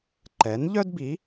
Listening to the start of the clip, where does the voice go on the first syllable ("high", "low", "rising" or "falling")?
rising